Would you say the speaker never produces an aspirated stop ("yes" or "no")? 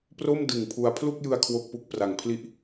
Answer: no